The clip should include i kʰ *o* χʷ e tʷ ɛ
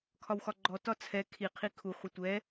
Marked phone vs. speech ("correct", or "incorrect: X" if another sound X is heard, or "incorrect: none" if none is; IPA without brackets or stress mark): incorrect: u